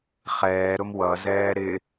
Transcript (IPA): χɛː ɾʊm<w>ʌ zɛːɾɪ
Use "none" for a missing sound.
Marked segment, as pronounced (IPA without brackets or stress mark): w